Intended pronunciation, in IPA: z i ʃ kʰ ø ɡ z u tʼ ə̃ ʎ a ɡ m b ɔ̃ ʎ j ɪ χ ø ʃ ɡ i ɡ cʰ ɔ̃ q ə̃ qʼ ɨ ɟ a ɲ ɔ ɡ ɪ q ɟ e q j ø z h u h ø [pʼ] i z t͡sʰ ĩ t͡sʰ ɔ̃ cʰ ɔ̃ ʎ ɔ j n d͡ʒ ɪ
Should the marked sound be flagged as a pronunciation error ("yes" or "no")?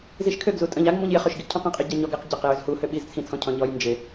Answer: yes